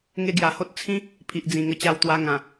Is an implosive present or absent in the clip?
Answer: absent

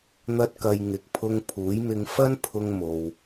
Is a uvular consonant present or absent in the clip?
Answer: absent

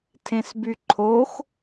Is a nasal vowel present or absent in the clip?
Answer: present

